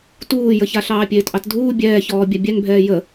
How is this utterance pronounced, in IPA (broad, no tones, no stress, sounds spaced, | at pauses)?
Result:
t uː j ə ç a ɬ ɑː pʲ eː t ʔ ɑ t dʱ uː bʲ ɛː ç ɔː bʲ a bʲ ɛ ŋ bʱ ɛː j ə